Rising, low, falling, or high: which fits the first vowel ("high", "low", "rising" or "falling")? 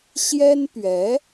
high